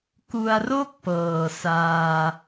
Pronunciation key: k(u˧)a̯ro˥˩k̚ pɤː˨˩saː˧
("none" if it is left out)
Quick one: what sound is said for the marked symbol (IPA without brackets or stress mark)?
u˧